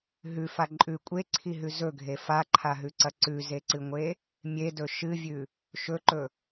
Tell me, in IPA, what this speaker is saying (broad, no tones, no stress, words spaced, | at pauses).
ɦʉfa ǃʼʉ kʷʼeǀʰiɦʉ zɵɡʱe faǃʰaɦʉǀɐ ǀʉzeǀɨŋʷe | mʲedɵ ʃɨvʲʉ | ʃɵǃɵ